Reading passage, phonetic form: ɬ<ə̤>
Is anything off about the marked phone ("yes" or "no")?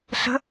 no